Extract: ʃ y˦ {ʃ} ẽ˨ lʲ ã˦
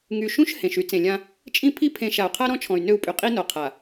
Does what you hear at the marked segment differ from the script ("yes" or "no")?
yes